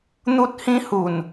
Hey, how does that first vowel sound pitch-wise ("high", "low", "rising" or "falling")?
high